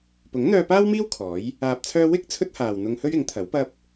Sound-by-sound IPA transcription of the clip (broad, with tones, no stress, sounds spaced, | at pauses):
p ʊ˨˥ ŋ n̪ œː˧ p aː˥ w m iː˥ w kʰ ɔː˨˥ j | aː˧ p̚ t͡sʰ œː˥ w ɪ˥ k̚ t͡sʰ ɵ˥ t̚ h aː˨ w n̪ ʊ˧ ŋ h ɵ˥ ɥ ɪ˨˥ ŋ t̪ʰ ɐ˨˥ w p ɐ˥ p̚